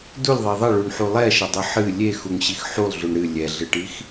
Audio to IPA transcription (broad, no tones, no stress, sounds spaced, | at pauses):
d u lʲ ðˤ ɛ ðˤ ɐ ɭ u ɳ ħ u lˠ ɛ ʃ ɐ dˤ ɨ ħ ɨ lʲ e x u ŋ ɕ i x ħ u lˠ ɮ u ɳ ɾ ɨ lʲ ɛ ɮ ɨ ʈ i x